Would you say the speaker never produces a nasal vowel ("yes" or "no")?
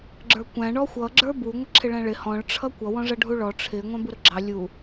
no